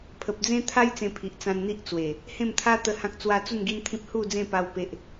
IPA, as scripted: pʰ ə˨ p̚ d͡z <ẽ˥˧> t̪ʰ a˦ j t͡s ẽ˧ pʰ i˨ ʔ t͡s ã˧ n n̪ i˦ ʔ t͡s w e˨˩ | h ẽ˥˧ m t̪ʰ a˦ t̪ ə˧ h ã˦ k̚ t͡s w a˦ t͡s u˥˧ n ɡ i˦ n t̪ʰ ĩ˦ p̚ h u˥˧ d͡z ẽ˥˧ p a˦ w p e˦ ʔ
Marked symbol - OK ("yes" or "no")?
no